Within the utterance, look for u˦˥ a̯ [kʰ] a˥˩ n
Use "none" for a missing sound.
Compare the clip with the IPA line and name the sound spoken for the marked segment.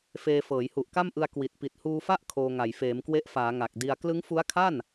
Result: kʰ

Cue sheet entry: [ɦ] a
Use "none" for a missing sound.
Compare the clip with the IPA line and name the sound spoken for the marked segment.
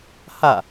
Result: h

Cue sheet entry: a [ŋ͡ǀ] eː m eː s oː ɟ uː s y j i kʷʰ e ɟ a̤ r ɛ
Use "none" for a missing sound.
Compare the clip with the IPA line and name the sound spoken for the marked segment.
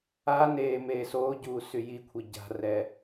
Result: n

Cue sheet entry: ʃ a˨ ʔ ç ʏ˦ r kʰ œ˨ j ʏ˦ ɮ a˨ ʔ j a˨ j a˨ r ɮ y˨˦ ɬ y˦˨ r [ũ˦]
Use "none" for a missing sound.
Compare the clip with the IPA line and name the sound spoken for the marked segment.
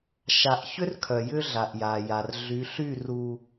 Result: u˦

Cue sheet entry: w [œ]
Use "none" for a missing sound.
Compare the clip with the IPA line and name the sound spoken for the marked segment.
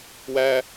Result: æ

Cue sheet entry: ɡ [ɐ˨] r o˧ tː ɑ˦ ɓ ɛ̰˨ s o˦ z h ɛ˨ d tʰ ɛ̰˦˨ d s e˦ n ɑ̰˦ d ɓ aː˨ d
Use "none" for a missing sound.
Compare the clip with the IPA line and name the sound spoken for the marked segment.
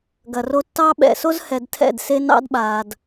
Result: ɐ˨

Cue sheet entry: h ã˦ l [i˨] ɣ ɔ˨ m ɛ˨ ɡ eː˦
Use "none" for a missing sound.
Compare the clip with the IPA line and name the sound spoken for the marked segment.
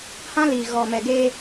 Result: i˨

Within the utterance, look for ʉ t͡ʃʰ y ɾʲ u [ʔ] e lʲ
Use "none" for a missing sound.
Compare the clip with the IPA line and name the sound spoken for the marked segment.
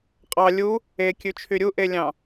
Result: ʔ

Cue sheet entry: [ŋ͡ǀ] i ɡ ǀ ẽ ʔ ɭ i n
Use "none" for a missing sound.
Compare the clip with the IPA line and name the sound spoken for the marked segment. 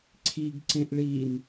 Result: ǀʰ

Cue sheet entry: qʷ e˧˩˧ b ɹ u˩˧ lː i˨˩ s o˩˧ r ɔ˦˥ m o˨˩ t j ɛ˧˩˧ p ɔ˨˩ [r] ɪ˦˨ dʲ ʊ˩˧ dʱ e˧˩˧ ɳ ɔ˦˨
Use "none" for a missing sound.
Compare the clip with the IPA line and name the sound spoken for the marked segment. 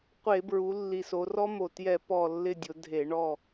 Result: lː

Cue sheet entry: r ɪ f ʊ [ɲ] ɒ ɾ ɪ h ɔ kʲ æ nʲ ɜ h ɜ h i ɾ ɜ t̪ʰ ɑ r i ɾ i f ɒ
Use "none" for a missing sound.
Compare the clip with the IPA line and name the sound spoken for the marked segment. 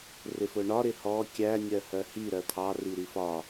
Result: ɳ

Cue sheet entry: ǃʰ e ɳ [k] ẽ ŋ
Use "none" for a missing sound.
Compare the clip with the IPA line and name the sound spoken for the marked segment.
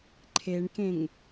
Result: k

